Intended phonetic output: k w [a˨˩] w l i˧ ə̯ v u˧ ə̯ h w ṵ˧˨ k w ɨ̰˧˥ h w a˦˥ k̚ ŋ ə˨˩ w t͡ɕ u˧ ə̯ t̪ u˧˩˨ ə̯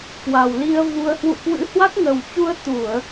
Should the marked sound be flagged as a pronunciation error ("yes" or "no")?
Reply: no